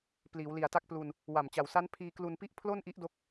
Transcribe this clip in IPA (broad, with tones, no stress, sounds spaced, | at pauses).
p l iː˩˦ w l i˨˩ a̯ t a˦˥ k̚ p l u˧ n | w a˨˩ m t͡ɕ a˨˩ w s a˦˥ n pʰ iː˧ k l u˧ n p i˥˩ ʔ pʰ l o˥˩ n ʔ i˦˥ ʔ d o˦˥ k̚